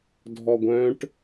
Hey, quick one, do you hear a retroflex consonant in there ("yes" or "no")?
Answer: yes